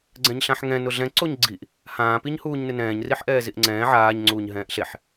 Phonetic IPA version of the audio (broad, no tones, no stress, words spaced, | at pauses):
ɡ͡ǀɛ̃ɲɬãħŋɛ̃ nʊɮɛ̃ ǀoɲɡ͡ǀiʔ | hãːpiɲ huːɲnɪnɛ̃ːɲriħ ʔɛːziʔŋ͡ǀɛ̃ː ʕaːɲ ŋ͡ǀuːɲɦɛ̃ːʔɬeħ